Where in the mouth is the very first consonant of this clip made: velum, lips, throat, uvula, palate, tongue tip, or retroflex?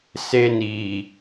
tongue tip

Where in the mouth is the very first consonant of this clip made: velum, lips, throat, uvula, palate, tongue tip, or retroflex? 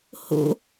throat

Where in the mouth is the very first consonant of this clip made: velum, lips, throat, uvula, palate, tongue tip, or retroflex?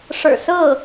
retroflex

